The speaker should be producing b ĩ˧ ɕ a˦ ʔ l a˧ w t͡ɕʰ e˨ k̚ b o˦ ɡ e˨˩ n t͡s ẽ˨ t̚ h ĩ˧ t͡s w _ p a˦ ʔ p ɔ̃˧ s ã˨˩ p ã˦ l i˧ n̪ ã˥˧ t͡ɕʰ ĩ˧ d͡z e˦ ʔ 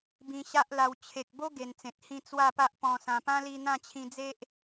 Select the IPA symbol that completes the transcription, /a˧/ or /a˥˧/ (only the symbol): a˥˧